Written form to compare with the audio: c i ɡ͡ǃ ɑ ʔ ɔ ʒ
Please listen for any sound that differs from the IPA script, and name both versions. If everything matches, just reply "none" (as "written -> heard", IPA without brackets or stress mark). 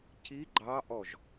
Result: none